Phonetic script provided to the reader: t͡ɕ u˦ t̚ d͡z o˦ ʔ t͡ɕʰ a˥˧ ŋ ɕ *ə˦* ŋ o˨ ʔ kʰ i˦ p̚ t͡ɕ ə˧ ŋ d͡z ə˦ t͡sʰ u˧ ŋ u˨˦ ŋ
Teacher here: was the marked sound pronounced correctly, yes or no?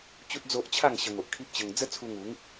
no